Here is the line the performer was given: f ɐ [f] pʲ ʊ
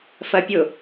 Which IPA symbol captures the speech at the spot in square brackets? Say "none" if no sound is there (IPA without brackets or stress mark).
none